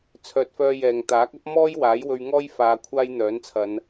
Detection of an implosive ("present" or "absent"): absent